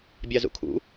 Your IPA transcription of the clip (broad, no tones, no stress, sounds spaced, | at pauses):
bʲ ɑ z ṵ kʰ ṵ